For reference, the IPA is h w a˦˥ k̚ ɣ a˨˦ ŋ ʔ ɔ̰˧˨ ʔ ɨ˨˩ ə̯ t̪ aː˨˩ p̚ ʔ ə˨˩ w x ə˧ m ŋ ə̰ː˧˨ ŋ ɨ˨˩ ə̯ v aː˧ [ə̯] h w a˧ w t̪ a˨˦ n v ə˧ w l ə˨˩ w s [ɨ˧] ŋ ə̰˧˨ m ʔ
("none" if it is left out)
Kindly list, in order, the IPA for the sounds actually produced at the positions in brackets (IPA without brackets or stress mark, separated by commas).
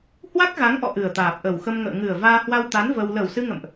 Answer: none, ɨ˧